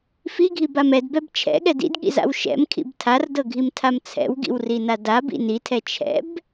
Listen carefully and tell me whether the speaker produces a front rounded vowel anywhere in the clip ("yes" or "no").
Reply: no